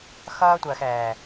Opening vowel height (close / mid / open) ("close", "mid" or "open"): mid